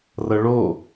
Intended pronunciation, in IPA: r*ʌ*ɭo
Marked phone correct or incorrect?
correct